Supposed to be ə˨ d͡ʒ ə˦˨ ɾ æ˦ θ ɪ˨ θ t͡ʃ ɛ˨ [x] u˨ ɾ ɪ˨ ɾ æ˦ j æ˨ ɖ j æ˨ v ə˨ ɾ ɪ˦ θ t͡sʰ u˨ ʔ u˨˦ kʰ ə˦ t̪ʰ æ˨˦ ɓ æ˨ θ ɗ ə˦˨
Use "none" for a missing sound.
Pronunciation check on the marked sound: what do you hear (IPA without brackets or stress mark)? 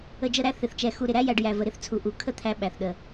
x